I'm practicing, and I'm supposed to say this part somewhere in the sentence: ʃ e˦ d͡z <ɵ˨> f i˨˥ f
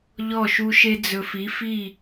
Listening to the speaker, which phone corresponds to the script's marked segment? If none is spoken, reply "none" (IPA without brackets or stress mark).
ɵ˨